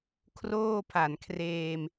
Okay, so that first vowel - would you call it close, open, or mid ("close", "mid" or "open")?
mid